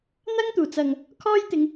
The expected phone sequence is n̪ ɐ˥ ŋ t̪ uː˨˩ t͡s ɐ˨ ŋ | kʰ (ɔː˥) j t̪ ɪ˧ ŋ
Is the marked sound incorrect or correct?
correct